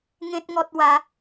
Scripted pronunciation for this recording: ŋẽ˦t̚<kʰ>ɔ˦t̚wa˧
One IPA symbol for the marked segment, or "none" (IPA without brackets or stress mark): ŋ